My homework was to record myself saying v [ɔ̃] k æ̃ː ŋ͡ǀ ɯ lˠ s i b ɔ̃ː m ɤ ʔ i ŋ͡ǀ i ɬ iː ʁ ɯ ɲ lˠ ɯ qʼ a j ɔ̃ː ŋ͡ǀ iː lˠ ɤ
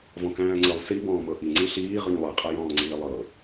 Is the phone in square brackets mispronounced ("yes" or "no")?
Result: no